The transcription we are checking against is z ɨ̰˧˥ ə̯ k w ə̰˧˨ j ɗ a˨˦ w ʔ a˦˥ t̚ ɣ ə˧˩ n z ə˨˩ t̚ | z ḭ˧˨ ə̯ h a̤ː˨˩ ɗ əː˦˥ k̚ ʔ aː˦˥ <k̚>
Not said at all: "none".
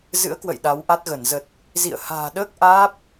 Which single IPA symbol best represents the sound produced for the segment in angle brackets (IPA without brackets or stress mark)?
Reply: p̚